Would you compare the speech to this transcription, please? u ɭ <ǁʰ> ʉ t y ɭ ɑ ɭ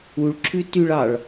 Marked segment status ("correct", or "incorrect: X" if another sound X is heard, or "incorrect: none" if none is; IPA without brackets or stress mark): correct